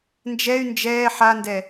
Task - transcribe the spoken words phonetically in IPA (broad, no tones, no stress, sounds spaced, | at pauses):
n d͡ʒ ɛ y̯ n d͡ʒ ɛː ħ a n d ɛ